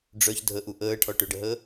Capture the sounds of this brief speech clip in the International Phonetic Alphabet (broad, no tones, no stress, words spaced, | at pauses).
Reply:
ɖ͡ʐœç dʱəʔu ʔəːʈʰɔ ʈøɖəɦəː